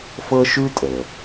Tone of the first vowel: high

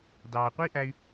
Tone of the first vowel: low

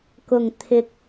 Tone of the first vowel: low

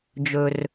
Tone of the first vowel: low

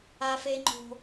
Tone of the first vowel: high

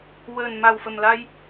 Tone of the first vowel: low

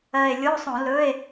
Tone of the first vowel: low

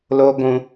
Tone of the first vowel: high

